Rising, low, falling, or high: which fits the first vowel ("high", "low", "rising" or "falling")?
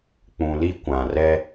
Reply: low